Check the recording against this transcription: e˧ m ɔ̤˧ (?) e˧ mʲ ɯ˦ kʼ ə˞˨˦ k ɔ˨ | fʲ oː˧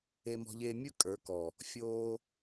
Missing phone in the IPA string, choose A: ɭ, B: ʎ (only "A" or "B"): B